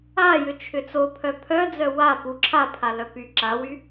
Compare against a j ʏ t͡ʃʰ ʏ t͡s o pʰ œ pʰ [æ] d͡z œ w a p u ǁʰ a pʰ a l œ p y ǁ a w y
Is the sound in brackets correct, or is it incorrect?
incorrect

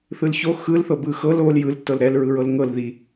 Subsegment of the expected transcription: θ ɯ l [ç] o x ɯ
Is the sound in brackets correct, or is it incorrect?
correct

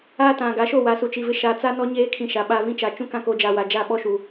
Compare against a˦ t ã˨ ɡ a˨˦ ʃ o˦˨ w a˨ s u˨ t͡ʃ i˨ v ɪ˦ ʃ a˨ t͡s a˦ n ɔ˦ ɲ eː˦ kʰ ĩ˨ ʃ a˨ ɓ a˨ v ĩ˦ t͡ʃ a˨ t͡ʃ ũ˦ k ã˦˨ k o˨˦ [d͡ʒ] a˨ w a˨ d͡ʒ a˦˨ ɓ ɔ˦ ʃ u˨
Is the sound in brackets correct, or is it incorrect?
correct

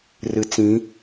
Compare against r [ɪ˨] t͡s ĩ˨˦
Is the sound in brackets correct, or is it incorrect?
incorrect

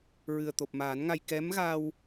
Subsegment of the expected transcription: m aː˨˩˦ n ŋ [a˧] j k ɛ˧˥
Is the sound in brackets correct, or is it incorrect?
correct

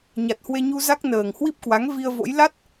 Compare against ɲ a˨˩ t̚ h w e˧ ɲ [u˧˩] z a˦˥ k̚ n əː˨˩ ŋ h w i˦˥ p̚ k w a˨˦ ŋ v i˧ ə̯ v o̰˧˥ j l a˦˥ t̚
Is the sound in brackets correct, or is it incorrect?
incorrect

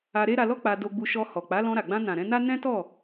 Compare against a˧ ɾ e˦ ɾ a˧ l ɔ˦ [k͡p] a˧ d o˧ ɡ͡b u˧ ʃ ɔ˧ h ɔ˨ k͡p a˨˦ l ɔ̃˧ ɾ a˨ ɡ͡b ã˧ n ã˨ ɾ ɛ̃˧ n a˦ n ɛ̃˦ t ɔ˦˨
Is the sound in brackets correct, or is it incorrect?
correct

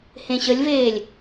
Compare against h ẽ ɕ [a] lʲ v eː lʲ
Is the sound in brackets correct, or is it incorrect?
incorrect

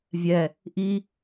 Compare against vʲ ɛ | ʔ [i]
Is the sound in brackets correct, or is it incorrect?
correct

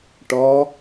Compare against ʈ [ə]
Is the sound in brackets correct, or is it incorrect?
incorrect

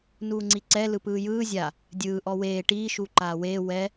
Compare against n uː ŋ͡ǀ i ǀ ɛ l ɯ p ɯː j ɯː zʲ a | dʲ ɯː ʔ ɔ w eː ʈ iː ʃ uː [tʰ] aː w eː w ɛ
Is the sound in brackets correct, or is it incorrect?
incorrect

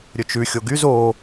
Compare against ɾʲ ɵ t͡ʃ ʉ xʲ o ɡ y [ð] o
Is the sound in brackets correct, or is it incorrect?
incorrect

